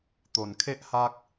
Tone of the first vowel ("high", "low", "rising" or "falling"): low